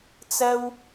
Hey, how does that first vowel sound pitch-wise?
high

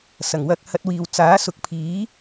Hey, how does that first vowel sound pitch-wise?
low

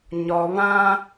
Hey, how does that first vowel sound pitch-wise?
low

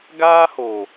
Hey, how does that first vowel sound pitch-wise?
high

